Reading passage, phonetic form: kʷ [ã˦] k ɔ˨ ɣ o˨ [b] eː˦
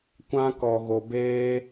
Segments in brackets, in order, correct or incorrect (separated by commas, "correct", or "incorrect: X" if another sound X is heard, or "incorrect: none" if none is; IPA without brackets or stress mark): correct, correct